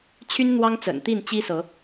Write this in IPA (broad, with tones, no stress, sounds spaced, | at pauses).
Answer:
t͡ɕʰ y˦ n n̪ w ɑ˦ ŋ t͡s ə̰˨˩ n t̪ i˥˨ n t͡ɕ i˦ s ɤ˨˦